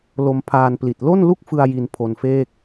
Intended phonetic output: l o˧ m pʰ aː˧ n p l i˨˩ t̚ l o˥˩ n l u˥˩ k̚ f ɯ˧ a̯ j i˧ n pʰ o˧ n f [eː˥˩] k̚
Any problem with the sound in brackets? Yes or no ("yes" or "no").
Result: no